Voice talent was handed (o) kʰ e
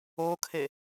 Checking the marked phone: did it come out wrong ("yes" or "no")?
no